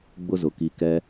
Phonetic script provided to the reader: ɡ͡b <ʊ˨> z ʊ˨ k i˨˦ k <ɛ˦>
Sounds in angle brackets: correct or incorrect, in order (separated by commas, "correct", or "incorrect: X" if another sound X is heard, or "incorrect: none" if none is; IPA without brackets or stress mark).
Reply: incorrect: ʊ˦, correct